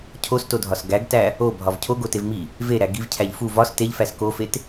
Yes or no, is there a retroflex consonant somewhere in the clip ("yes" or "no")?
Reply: no